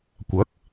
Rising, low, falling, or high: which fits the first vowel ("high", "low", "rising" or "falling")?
rising